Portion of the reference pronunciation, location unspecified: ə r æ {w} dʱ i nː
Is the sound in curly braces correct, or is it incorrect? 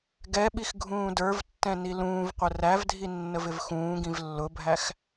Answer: incorrect